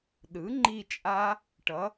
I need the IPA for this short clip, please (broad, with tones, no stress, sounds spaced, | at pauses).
ɗ ɯ˩˥ ŋ͡ǃ i˦˨ t͡ʃʼ a˦˥ | ʈ ʌ˩˥